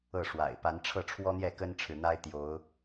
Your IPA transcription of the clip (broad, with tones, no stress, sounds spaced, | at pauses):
ɤ˥˨ ʂ w a̰˨˩ ɪ̯ p a˨˦ n ʈ͡ʂʰ ɤ˥˨ ʈ͡ʂʰ w ɔ˦ n̪ j ɛ˥˨ k ə˦ n ʈ͡ʂʰ ɻ̩˨ n̪ a˦ ɪ̯ t̪ j o˨˦ ʊ̯